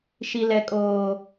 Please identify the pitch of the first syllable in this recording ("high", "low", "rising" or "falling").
low